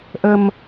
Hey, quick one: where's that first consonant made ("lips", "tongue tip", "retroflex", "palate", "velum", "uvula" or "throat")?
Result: throat